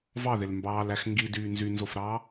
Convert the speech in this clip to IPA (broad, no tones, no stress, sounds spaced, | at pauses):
v ɑ ð e l m b ɑː l æ x ŋ ɡ i d yː n z y n z o f ɾ ɑː